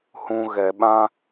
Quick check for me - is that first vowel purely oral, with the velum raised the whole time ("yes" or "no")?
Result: no